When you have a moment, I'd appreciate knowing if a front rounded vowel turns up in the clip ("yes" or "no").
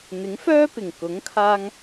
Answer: yes